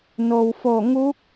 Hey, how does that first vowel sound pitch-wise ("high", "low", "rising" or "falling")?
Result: low